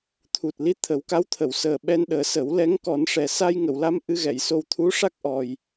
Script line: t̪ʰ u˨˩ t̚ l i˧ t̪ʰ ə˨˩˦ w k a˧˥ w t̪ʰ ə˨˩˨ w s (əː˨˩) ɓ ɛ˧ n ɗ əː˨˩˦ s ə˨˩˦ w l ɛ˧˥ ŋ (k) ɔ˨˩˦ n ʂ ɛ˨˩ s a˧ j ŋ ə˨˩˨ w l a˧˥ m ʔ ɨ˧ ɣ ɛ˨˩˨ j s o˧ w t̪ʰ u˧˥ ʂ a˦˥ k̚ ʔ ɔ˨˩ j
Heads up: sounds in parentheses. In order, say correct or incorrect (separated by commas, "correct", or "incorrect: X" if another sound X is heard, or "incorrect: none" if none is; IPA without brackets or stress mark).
correct, correct